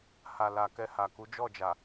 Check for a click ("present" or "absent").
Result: absent